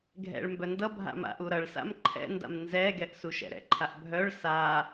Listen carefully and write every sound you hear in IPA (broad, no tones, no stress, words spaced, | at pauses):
ɡʱɛ̰ɭ mbœndʌbʱa̰ ma̰ʔuɾʌɭsa̰m ǃʰɛ̰ nda̰mnzɛɡɛʔ suʃɛ̰ɾɛ̰ǃʰaʔ bʱœɭ sa